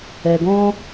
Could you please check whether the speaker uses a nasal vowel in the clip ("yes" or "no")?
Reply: yes